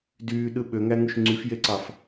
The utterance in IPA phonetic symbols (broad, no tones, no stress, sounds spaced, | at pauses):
d yː ɗ ɯ ɓ ø ŋ æ ŋ u ʃ ŋ͡ǀ y f j e ǀ ɑ f